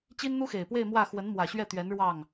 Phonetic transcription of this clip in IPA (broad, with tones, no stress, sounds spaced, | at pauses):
t͡ɕ i˥ n n̪ u˥ x e˨˩ ɪ̯ p w e˥˧ ɪ̯ m w ä˥˩ x w ə˧˥ n m w ä˨˩ ɕ ɥ ɛ˥˩ t̪ ɥ ɛ˧˥ n ɻ w ɑ˥˩ ŋ